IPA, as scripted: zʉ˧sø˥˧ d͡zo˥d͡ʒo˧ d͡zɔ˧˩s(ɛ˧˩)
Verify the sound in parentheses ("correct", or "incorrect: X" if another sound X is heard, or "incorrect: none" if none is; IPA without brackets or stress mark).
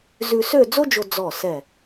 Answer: correct